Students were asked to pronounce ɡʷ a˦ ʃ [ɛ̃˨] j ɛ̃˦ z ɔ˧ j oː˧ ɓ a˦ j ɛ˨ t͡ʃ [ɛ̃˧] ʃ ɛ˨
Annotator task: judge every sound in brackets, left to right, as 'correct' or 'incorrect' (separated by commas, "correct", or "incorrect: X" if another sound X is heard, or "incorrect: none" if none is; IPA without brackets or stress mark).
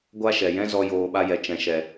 incorrect: ɛ˨, incorrect: ɛ̃˨